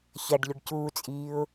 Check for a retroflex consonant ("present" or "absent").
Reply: present